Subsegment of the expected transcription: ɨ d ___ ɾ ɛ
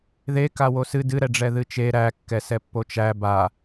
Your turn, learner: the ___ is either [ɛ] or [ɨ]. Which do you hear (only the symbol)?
ɨ